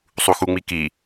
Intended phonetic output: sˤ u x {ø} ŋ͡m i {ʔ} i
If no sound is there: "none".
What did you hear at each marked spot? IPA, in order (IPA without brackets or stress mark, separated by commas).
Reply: u, k